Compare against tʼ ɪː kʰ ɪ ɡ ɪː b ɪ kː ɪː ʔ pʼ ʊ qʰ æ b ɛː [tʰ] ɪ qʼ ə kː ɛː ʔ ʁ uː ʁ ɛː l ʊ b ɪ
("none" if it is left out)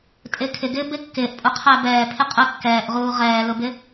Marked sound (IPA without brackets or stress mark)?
pʰ